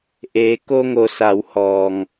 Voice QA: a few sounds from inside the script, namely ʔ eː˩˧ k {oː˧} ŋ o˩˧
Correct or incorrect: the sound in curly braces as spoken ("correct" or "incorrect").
incorrect